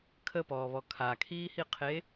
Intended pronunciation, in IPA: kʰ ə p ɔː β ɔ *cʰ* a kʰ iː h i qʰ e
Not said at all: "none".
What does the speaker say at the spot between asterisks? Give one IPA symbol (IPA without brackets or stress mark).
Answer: kʰ